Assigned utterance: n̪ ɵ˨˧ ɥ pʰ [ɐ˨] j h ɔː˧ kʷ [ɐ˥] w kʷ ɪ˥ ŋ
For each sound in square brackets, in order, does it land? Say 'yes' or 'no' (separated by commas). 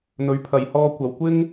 yes, no